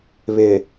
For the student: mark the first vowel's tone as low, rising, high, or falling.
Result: low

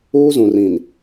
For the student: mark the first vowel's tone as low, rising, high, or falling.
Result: high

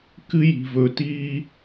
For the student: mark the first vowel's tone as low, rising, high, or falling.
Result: high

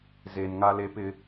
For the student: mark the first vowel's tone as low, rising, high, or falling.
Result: low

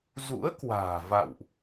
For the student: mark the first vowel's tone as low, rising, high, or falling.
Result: rising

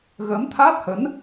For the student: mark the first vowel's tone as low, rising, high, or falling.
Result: rising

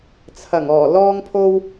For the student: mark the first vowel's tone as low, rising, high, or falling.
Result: low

